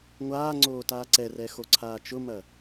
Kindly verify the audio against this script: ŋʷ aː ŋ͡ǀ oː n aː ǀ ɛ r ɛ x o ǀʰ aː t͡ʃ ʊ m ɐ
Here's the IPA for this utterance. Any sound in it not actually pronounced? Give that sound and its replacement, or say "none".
n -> t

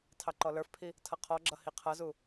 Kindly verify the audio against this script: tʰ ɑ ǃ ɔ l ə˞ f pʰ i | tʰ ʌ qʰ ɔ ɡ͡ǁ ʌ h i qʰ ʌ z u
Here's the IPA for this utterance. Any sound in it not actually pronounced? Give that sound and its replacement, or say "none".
none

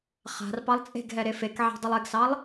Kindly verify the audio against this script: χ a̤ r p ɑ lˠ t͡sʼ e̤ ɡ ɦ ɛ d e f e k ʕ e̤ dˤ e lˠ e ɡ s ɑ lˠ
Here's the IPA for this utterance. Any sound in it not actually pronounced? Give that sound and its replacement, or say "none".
d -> ɾ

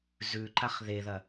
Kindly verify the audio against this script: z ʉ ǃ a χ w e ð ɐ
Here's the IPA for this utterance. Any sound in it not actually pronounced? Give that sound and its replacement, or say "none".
w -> ð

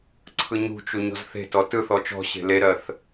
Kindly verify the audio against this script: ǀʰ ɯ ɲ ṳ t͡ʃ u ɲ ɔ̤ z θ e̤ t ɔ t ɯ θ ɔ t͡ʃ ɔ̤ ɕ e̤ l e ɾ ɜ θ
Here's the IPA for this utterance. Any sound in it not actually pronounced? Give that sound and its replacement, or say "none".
none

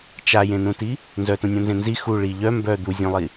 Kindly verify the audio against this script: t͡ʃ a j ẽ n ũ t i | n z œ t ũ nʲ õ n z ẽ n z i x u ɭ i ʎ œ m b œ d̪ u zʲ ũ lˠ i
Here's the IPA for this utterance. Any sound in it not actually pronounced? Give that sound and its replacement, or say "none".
none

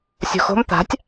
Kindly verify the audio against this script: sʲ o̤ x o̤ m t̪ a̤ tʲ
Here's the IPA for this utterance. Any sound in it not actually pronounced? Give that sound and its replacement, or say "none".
none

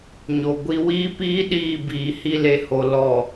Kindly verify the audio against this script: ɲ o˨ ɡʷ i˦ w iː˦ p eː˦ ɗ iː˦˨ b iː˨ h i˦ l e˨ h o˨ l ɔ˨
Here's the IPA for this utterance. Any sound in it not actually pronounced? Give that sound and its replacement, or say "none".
eː˦ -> iː˦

